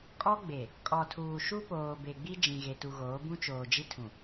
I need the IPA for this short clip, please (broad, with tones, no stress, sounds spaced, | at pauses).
kʼ ɔ˦ ɡ͡b e˨ | kʼ ɔ˨ tʰ uː˨ ʃ u˦ p oː˨ b e˨ ɡ͡b i˦ d͡ʒ ĩ˨ ɣ e˨ t u˨ ɣ oː˨˦ b ũ˦ t͡ʃ oː˨ d͡ʒ i˦ tʰ ũ˨